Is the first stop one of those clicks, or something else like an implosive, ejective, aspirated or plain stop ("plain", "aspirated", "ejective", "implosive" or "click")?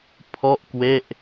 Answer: aspirated